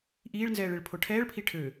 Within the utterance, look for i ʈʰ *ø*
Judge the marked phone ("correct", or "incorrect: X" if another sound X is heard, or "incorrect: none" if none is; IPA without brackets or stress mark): correct